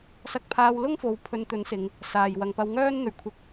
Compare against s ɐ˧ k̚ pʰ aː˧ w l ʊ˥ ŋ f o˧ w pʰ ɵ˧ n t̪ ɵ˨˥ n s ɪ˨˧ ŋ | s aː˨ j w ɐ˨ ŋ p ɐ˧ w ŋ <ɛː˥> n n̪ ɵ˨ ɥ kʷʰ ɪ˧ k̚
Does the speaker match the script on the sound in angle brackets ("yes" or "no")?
no